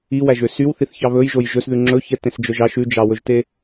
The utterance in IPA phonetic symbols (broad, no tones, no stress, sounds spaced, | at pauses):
i w æ ʒ ø s y w θ i θ ç ɑ β ɵ j ʒ o j ʒ ɵ s ð ʉ ŋ͡ǁ ɵ ç ɛ t ẽ s d͡ʒ œ ʒ ɑ ʃ ʉ d͡ʒ ɑ w ɵ ʒ t e